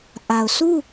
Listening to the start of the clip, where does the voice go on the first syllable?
low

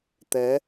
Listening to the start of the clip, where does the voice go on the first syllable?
rising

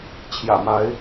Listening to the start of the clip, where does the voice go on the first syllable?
low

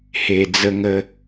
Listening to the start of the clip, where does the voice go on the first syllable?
low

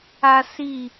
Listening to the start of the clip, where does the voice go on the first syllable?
high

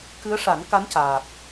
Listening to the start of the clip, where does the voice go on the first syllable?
rising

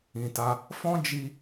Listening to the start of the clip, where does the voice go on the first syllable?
low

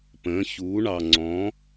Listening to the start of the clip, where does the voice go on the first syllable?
rising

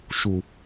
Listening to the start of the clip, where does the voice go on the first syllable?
low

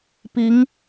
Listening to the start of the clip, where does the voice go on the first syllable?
rising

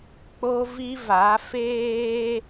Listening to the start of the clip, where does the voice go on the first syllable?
high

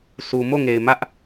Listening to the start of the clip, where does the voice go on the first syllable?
low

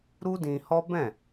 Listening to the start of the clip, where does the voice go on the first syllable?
high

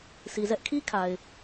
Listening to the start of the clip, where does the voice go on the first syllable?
low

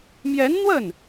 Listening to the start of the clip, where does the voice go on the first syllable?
rising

